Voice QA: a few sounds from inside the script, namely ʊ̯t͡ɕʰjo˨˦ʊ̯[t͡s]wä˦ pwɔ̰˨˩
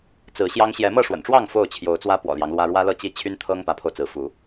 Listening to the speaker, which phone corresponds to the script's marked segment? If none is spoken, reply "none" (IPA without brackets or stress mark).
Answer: t͡s